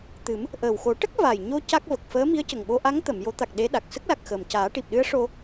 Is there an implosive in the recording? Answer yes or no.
yes